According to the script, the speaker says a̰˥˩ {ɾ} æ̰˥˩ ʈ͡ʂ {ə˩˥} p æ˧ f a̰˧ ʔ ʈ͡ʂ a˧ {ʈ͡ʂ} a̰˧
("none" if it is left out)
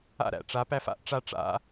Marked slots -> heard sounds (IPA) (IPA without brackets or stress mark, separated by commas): ɾ, a˩˥, ʈ͡ʂ